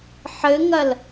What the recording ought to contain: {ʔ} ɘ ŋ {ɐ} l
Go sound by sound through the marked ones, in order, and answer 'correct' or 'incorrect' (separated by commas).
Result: incorrect, correct